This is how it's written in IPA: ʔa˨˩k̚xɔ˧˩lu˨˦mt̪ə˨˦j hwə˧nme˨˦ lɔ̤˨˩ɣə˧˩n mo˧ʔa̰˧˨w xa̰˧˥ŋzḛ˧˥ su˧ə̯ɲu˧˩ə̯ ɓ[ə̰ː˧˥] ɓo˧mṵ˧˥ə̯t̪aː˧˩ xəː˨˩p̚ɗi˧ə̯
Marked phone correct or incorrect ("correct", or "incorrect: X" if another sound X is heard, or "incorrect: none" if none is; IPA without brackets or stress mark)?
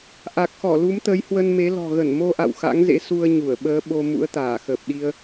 incorrect: əː˨˦